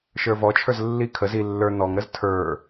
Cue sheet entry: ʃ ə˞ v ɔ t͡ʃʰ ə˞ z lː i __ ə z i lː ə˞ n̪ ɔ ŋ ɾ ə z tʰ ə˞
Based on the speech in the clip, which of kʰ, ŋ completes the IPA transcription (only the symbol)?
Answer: kʰ